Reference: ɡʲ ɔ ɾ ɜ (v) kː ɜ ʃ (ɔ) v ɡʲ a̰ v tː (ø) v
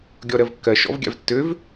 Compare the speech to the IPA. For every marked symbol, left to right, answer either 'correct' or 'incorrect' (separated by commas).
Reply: correct, incorrect, correct